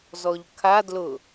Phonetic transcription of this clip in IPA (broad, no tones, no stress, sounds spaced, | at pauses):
z ɔ ʎ kʰ a d l ʊ